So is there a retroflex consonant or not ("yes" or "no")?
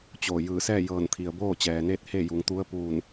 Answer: no